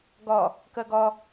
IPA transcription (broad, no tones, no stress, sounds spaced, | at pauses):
ɡ ɒ | k ɜ ɡ ɒ